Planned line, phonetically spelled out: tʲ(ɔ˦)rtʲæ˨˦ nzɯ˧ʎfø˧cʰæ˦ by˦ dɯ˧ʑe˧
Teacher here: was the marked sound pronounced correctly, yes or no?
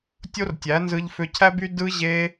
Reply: no